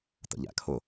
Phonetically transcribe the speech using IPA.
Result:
t ə̰ ʎ æ̰ kʰ ʊ

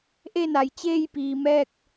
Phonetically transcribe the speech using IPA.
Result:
ʔ e˥˨ n a˩ j t͡ɕ eː˥˨ j p iː˩ m ɛː˥˨ k̚

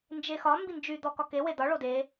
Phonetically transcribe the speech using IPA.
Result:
n d͡ʒ e x ɒ m b i n d͡ʒ y d̪ ɔ k ɒ k e w e d̪ ɒ ɭ o d e

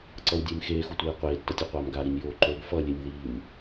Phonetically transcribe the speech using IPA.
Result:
ǀ ʌ w dʲ eː m x eː x u tʷ eː qʷ eː tː ʌ tʲ o qʷ aː m ɡ a ɾ i nʲ j oː ǃ o ɡ f ʌ lʲ e nʲ ð iː m

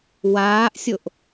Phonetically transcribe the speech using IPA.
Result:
w aː ʔ sʲ o ʔ

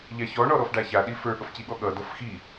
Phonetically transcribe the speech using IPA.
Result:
ʎ a ç ɔ ɳ ɔ ɾ ɔ f ɖ a ç a ɗ i f ə˞ ɠ ʌ f c i ɠ ɔ ɠ ʌ d ʌ f x i

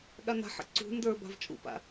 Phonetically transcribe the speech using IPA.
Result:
ɠ a n a̤ ħ ə̰ ǀ ṳ n d ə˞ b a̤ v t͡ʃʼ ṵ p a̰

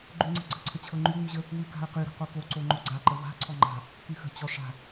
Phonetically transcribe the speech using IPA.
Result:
ɡ͡ǃ ʉ ŋ͡ǀ ə̤ ɡ͡ǀ ə̤ ǀʰ ə t͡ɕʰ ɤ ŋ͡ǃ y ŋ͡m ʉ ʑ ə | w ʉ k a̤ ə̯ q y ɾ ə̤ q o k o ǀ o ŋ͡ǃ o ɡ͡ǀ a ǃ ə v a̤ ǀʰ ɔ ŋ͡ǃ a̤ | k y x ə̤ t͡ɕ ɔ ʂ a̤

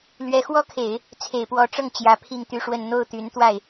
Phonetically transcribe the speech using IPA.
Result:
l ɥ ɛ˧˥ x w ɔ˥ kʰ e˨˩˦ ɪ̯ | t͡sʰ e˨˩ ɪ̯ p w ɔ˧˥ ʈ͡ʂ ɤ˥˩ ŋ t͡ɕ j ä˧˥ pʰ i˥˧ ŋ t̪ y˥˧ ʂ w ə˥˧ n n̪ o˥˩ ʊ̯ t̪ y˧˥ n t̪ w a˥˩ ɪ̯

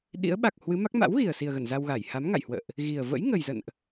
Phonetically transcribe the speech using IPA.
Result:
ɗ ḭ˧˥ ə̯ ɓ a˨˩ k̚ h w ɨ˨˦ m a˦˥ k̚ m a̰˧˥ w ɣ i˨˩ ə̯ s i˨˩ ə̯ ɣ ə˧˩ n z a˧ w ɣ a˧˩ j h a˨˦ m ŋ a̰˧˨ j h w ə̰ː˧˨ ʔ | ɣ i˨˩ ə̯ v ə̰˧˥ j ŋ ə˨˩ j z ə̰˧˨ n ʔ

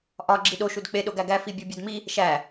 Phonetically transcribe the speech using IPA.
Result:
ʔ ɒ ɡ͡ǁ i ɗ o ʃ u d k͡p e ɗ o ɡ æ ɡ æ f i bʲ o bʲ ɒ d m i | ʃ æ

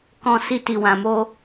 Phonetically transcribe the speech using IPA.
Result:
k ɔ̃˧ s i˧ t i˨ w ã˨ m o˧

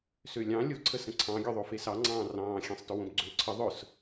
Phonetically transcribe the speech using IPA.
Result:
s ø lʲ ɑ̃ lʲ ʊ ǀʰ ə s ə̃ ǀʰ ɑ̃ ɡʲ ø ðˤ o f e s ɑ ŋ͡ǀ ɑ̃ː r ɑ̃ː xʲ ẽ sˤ t ʊ w õ b ɡ͡ǀ ø ǀʰ ə ðˤ ʊ s

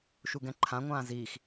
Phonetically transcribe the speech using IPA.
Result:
ʃ u ɡ ɛ̃ ǃʰ ã ŋʷ ãː z iː x

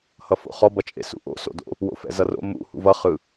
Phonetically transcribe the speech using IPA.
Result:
h ʌ f o̰ χ ɔ b ʌ t͡ʃʼ ḛ s ṵ ʔ o̰ s o̰ d o̰ | w o̰ f ɛ̰ z ʌ r o̰ m ṵ h ṵ v ʌ χ ɯ

